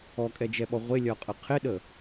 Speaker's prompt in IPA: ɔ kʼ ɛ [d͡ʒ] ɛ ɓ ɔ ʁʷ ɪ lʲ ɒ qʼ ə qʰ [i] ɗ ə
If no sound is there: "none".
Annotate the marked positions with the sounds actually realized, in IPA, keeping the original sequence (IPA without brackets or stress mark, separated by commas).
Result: d͡ʒ, ɪ